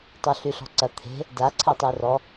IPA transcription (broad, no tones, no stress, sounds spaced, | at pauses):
tˤ o ɬ y ɬ ɔ̤ ǀ ɐ t̪ʰ e̤ | d a ǀʰ ɛ tˤ i r ɔ